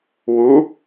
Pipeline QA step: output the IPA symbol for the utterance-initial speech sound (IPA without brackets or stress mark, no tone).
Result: w